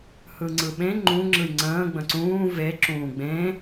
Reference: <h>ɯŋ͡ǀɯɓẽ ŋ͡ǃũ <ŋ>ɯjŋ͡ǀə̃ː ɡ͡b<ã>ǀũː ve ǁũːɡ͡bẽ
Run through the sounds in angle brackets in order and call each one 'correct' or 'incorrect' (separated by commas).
correct, incorrect, incorrect